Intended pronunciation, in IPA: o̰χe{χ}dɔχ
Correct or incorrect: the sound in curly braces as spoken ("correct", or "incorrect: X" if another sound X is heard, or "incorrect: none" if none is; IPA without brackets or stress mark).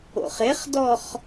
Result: correct